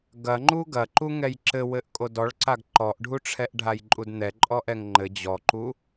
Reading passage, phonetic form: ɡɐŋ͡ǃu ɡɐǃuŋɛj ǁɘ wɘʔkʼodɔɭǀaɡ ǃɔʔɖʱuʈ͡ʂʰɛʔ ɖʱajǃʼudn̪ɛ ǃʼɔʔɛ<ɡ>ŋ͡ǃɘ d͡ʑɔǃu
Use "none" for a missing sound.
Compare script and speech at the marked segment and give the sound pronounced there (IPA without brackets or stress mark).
ŋ